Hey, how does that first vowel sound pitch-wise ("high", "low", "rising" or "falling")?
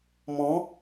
rising